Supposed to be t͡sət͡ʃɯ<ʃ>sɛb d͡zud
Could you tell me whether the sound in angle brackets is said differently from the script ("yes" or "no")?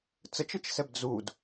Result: yes